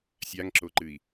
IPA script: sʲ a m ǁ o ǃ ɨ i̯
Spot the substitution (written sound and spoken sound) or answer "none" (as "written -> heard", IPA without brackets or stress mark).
m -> ŋ